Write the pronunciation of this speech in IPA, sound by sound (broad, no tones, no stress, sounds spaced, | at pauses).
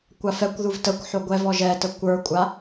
kʷ a f ɛ kʷ ð u v t ə kʷ ħ o ɡʷ ɛ v ɔ ʒ ɛ t ə kʷ ə˞ kʷʼ a